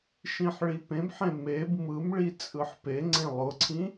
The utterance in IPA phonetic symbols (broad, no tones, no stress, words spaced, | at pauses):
ʃĩħɭipẽbħẽ meb mɯmɭi t͡sʼɯħpeŋ͡ǀẽ lˠʊǀʰĩ